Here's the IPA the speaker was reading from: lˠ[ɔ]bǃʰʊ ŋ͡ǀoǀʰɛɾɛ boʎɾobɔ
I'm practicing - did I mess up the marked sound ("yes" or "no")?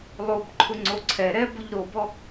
yes